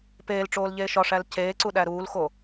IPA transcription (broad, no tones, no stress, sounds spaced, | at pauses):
p eː l ʈ͡ʂ oː l ʎ eː ʃ ɒ ʂ æ l c eː ǀ u ɗ æ ɾ uː l x o